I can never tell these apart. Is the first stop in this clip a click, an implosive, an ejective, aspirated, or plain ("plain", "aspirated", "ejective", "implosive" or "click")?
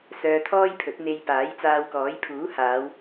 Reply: aspirated